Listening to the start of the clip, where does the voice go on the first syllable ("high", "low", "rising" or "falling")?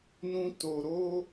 high